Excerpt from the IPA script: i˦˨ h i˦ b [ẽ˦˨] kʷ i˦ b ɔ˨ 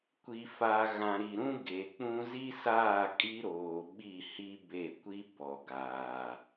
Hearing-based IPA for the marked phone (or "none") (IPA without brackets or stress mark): e˦˨